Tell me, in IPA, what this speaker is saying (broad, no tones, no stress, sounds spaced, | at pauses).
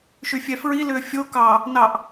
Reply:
ʃ y fʲ ɛ f ɹ i l ʏː fʲ o k ɑ | n ɑ ʔ